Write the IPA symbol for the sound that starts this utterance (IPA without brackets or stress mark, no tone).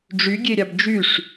ɖ͡ʐ